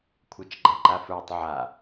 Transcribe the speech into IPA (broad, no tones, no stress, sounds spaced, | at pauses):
kʷʰ ə˞ t͡ʃ ɡ͡ǃ a ǃ a f ə˞ tˤ ʕ a